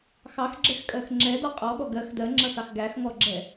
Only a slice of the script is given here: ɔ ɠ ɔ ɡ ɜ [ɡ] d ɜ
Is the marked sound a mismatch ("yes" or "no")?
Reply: yes